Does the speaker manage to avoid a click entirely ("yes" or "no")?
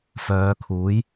yes